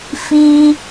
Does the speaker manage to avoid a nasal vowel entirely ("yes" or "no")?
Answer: yes